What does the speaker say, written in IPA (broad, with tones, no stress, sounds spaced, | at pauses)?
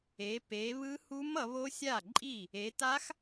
e˨˦ p e˨˦ β ɯ˦˥ h u˦˥ m ʌ˨˦ β o˦˥ sʲ a˥˩ ǃʼ i˥˩ | e˨˦ t a˦˥ x